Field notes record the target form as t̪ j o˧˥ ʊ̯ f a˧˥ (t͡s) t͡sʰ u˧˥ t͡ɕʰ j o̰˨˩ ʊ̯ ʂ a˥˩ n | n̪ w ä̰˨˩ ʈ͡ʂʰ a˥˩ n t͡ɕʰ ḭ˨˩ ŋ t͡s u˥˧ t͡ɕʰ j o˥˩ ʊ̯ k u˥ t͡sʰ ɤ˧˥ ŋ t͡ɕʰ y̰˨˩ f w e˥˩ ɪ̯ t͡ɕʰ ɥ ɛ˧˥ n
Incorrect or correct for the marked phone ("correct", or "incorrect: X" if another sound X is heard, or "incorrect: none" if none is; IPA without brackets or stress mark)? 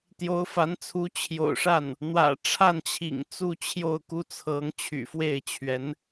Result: incorrect: n